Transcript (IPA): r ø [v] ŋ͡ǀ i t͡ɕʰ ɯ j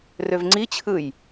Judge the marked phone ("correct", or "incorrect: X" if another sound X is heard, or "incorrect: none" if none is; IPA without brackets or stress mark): correct